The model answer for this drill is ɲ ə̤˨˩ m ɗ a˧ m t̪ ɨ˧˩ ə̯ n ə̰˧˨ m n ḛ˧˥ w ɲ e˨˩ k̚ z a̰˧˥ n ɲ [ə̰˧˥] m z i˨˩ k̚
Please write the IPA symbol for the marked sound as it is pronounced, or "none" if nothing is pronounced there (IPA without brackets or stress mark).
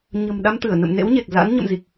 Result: ə̰˧˨